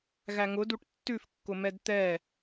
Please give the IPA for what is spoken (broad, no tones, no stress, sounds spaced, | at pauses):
ɣ æ ŋ ʊ d u ʈ tː ʉ f kː ʊ m ɛ d t̪ ɛ